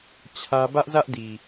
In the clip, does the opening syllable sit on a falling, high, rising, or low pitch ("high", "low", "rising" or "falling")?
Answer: high